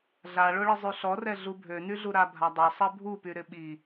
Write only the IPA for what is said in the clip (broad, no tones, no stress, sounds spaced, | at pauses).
ɮ a ɭ o ɭ ɪ zˤ y ɬ ɔ r ɛ ɮ u bʱ ø n y ɮ u ɾ a bʱ a dˤ ø sˤ ɛ bʱ u p y ɾ ɪ ɓ i